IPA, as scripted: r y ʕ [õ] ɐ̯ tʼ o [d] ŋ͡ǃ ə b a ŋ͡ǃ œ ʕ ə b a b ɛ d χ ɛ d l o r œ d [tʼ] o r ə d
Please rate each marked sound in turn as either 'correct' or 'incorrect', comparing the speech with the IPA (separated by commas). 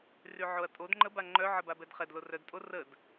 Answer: incorrect, correct, correct